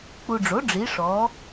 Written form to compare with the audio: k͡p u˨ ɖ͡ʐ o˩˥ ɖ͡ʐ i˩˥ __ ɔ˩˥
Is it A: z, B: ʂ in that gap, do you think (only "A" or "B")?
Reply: B